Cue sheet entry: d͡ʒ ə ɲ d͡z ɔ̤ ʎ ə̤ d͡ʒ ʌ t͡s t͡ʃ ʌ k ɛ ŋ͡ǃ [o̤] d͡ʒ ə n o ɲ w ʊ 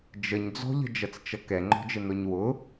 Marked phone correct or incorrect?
incorrect: ɔ̤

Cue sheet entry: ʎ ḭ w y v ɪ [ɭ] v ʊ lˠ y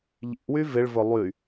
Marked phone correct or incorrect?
correct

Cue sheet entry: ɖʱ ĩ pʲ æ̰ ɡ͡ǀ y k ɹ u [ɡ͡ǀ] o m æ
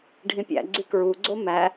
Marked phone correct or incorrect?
correct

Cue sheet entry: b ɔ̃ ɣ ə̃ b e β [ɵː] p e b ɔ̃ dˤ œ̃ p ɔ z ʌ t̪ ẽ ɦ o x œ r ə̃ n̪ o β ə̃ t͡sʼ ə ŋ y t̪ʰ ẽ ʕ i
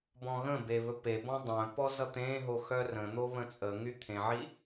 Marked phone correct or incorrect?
incorrect: ɵ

